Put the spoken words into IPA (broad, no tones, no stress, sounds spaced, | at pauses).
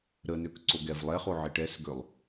ɾ ə n ø k ǀ o ɡ ɛ v lˠ ɛ χ o ʕ i ʈ ɛ s ɡ ø lˠ